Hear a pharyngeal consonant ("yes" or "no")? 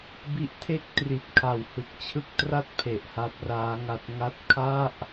no